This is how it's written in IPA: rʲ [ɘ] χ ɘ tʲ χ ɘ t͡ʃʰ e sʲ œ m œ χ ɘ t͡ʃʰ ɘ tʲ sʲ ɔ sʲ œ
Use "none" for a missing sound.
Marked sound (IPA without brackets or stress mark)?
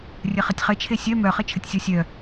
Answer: ɘ